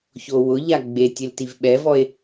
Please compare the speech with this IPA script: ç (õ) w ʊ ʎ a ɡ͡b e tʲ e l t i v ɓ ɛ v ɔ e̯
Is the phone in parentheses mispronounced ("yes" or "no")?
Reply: yes